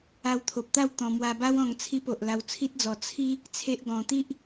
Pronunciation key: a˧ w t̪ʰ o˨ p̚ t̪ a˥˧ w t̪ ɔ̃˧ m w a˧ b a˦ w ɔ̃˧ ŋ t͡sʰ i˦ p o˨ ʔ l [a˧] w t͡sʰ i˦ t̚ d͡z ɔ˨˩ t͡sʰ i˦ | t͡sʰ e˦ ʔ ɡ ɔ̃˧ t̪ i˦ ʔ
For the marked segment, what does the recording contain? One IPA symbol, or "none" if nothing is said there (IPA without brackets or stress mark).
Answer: a˧